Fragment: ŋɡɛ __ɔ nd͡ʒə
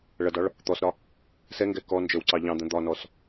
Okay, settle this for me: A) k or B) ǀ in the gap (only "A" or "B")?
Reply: A